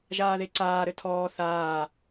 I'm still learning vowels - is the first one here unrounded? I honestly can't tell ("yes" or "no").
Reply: yes